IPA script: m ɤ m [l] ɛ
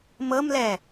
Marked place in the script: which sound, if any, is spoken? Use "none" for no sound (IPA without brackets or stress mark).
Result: l